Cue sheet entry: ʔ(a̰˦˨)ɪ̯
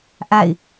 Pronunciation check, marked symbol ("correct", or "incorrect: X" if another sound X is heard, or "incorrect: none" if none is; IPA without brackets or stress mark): correct